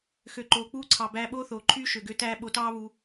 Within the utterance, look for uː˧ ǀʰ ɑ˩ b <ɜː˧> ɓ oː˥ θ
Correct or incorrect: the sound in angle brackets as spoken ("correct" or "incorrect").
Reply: incorrect